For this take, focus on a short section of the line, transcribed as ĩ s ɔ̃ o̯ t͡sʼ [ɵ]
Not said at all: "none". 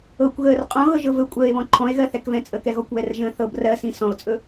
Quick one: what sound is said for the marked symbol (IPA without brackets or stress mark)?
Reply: ɵ